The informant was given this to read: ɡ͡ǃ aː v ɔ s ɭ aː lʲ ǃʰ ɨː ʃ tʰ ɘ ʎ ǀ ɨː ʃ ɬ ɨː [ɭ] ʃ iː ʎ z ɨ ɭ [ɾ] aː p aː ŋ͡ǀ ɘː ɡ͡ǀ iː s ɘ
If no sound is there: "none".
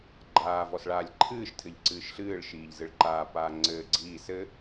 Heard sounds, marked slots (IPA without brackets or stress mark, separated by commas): ɭ, ǃ